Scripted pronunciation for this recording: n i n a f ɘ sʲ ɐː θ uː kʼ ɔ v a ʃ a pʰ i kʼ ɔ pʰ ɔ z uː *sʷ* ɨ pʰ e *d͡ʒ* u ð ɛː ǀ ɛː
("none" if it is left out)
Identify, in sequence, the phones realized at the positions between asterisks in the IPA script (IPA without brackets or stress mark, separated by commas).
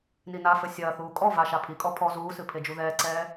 s, d͡ʒ